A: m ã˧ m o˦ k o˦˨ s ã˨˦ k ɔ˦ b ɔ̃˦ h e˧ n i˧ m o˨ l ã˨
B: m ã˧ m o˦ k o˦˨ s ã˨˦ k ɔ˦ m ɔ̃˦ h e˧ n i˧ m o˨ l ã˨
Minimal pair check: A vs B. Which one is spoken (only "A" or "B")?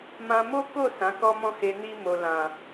B